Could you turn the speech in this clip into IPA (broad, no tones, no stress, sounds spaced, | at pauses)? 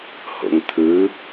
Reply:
h o̰ ŋ t̪ʰ ɯ